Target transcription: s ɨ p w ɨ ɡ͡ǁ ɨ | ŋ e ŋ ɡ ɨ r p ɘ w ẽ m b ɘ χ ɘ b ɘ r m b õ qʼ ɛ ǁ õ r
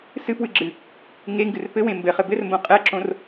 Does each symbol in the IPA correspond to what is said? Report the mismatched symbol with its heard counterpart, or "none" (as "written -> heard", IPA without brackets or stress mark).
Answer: none